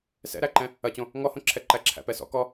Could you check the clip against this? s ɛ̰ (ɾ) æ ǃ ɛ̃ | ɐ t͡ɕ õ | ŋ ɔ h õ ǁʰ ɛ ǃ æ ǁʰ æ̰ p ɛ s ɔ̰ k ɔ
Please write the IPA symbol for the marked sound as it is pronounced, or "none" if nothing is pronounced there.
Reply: ɾ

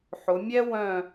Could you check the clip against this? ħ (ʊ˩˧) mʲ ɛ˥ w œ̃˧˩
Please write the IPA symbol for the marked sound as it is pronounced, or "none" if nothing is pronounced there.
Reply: ʊ˩˧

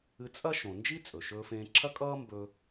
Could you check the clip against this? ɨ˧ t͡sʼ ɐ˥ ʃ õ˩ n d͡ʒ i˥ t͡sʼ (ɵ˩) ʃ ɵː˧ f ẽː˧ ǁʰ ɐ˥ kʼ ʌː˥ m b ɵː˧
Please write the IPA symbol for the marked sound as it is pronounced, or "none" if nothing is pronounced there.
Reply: ɵ˩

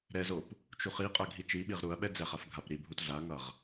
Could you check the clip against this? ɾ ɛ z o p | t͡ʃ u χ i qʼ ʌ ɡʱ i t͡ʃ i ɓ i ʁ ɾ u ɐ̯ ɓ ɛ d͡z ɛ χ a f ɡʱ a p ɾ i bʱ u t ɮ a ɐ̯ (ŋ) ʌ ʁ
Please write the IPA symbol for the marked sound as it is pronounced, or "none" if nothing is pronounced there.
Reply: ŋ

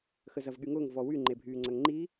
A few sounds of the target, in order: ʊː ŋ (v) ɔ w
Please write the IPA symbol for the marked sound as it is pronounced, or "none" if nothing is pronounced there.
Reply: v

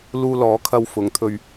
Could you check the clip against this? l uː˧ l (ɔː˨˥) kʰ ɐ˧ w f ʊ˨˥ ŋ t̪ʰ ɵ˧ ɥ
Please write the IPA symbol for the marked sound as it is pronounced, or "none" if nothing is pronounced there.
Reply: ɔː˨˥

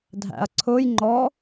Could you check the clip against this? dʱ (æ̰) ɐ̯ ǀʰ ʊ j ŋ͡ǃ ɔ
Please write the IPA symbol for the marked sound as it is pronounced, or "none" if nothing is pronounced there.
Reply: æ̰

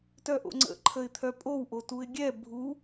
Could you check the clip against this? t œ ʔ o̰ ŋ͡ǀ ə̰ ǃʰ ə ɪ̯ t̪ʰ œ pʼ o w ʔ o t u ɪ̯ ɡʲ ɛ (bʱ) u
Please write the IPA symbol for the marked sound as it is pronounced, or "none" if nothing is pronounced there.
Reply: bʱ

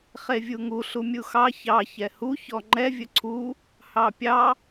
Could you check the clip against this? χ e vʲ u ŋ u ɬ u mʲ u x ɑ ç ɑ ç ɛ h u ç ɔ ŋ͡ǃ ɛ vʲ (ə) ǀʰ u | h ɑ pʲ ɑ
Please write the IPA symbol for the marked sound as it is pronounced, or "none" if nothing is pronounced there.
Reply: ə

